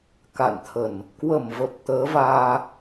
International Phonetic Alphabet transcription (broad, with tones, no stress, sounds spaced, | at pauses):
k a̰˧˨ n t̪ʰ ə˧˩˨ n | k w ə˧˩ m v ə˨˩ p̚ t̪ əː˨˦ v aː˧